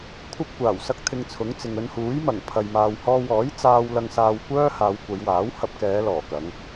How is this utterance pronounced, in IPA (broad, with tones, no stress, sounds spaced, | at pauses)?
kʷʰ ɐ˥ p̚ kʷ aː˨˩ w s ɐ˥ k̚ t̪ʰ ɪ˧ ŋ t͡sʰ ʊ˨˥ ŋ t͡s ɪ˨ ŋ ɵ˧ n h uː˨˥ j m ɐ˨˩ ŋ pʰ ɐ˨ j m aː˨ w h ɔː˧ w ɔː˨˥ j t͡s aː˧ w l ɐ˧ ŋ s aː˧ w kʷ œː˥ h aː˨˧ w kʷ ɐ˨˧ j w aː˨˥ w h ɐ˧ p̚ k ɛː˨˧ l ɔː˨˩ k ɐ˨˧ ŋ